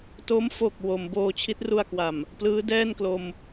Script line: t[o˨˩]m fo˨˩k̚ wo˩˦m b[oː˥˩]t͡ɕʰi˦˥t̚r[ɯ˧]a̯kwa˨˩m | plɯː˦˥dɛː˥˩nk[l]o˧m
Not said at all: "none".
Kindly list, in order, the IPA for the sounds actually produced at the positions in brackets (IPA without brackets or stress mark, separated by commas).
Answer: o˦˥, oː˧, u˧, l